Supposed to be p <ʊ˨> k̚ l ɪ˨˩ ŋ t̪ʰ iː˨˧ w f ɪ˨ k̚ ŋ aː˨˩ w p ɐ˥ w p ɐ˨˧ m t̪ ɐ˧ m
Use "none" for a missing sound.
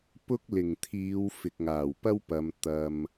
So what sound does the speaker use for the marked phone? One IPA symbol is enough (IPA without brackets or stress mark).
ʊ˥